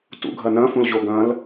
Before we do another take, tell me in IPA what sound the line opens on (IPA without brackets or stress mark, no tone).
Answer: t